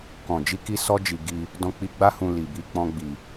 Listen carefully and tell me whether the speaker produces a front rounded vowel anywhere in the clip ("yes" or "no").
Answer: no